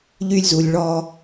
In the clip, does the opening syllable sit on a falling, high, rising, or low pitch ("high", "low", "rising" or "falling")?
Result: high